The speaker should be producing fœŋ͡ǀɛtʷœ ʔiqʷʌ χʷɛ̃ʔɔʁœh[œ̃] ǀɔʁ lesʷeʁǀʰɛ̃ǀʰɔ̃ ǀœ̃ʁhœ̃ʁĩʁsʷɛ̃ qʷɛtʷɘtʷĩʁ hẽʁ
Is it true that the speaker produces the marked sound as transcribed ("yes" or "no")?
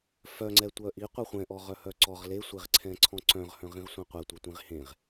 no